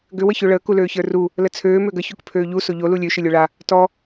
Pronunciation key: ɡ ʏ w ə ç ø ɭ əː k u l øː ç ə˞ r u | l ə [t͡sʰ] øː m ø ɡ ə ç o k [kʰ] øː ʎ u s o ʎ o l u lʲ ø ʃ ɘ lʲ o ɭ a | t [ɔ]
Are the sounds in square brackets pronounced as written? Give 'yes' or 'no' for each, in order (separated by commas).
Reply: yes, no, yes